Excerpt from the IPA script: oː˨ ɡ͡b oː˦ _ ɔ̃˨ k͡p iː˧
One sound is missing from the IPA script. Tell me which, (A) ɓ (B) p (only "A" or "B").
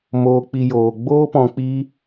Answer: B